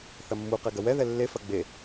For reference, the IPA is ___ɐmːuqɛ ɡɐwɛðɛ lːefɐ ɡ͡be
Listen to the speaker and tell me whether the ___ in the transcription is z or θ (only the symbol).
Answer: θ